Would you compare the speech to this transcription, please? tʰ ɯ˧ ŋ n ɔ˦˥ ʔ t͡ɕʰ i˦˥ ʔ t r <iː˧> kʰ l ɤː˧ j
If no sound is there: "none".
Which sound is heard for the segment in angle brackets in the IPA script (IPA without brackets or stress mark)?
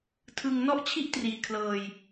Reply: iː˧